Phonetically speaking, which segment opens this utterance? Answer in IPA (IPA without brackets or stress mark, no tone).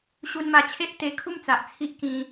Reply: ɕ